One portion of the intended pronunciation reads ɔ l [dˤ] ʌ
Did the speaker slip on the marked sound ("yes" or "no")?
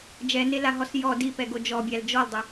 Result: no